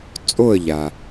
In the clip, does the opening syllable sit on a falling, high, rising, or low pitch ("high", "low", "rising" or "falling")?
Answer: falling